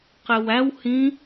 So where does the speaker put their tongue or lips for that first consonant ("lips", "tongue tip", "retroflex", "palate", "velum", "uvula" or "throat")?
uvula